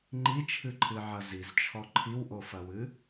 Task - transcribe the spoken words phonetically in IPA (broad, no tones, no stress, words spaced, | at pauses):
ŋ͡ǃit͡ʃʰɨǃʰɨʕɐ zizt͡ʃʰɔ ǃʰiwʔofɐwɨ